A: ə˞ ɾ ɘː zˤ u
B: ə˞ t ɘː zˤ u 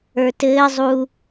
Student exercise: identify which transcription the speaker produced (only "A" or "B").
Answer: B